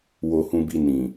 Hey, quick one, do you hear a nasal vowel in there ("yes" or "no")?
yes